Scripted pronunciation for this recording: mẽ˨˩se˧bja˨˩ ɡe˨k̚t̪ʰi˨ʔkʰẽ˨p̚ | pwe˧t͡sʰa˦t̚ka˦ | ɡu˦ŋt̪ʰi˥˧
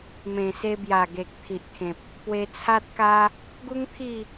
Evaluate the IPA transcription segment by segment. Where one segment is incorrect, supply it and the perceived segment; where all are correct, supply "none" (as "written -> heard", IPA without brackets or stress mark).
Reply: none